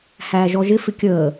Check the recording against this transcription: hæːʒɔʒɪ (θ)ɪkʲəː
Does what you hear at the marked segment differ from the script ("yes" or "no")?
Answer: yes